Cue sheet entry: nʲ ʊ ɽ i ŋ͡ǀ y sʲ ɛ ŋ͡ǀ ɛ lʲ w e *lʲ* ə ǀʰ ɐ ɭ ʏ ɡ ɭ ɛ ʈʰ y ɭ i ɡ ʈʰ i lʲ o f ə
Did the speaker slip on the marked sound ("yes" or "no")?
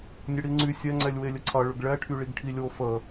no